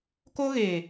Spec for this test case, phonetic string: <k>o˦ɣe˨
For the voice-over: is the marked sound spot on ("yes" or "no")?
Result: yes